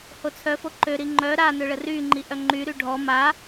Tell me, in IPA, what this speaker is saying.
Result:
h o t͡sʰ œ f o ǃ ø ɾ i ŋ͡ǃ œ ɾ a n ø ɭ ə r y ŋ͡ǃ i ʔ œ ŋ͡ǃ y ɾ y ɖʱ ɔ m a

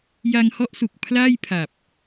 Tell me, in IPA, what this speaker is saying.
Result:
j a˧ ŋ h ɔ˦˥ ʔ s u˨˩ k̚ pʰ l aː˥˩ j pʰ a˨˩ p̚

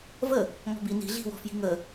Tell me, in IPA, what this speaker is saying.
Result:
v ə | ŋ ɔ̤ b i n i̤ ɮ i̤ w ɔ̤ f j i̤ ŋ ə

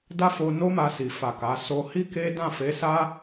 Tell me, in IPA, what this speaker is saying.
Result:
d a˦ f o˧ n o˦ m a˧ s i˨ f a˨ k a˨˦ s o˦ h i˦ k e˦ d ã˦˨ f e˨˦ s a˦

